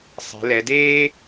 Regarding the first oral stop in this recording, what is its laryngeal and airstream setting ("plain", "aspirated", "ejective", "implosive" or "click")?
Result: plain